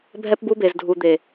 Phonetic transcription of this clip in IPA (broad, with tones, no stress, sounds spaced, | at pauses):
bʱ ɛ˦ p b u˦ b e˨ z dʱ u˨ d̪ e˨